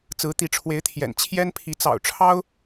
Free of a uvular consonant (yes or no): yes